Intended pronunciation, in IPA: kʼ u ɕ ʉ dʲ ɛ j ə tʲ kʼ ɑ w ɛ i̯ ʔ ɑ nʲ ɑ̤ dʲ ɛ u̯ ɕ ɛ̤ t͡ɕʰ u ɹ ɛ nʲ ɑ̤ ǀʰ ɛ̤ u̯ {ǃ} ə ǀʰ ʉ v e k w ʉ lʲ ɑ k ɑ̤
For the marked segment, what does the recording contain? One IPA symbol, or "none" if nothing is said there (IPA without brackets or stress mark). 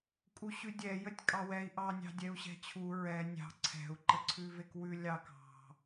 ǃ